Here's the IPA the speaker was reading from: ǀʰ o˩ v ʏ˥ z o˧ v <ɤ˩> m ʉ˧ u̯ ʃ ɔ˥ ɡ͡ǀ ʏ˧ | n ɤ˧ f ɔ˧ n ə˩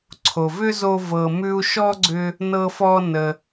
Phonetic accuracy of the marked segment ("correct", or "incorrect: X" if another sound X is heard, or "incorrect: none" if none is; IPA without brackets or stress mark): correct